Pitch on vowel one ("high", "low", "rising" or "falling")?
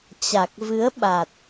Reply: low